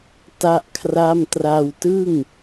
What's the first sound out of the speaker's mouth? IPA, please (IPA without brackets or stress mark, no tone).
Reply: t